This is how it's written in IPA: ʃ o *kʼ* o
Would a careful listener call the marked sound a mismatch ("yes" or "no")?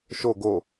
yes